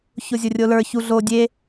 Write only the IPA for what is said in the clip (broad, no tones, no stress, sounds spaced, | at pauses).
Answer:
ç o zʲ o rʲ o l ə˞ ç u ɮ o dʲ e